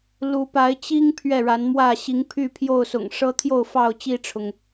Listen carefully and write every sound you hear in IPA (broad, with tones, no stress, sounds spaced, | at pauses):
l u˨˦ p a˨˦ ɪ̯ t͡ɕ i˦ ŋ pʰ ɥ ɛ˥˨ ɻ a˨˦ n m w ä˥˨ ɕ i˨˦ ŋ pʰ y˥˨ pʰ j o˥˨ ʊ̯ s ʊ̰˨˩ ŋ ʂ ɤ˦ t̪ʰ j o˥˨ ʊ̯ f ɑ˥˨ ʊ̯ t͡ɕ i˥˨ ʈ͡ʂʰ ʊ˩ ŋ